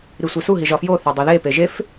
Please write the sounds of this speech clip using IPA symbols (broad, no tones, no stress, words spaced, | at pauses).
ɾisʷesuɦiʒ ɒfjoθɒ dˤoðepe ʒef